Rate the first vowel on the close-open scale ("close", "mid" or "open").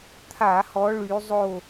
open